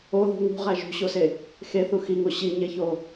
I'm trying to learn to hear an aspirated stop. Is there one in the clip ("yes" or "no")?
no